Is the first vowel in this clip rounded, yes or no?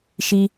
no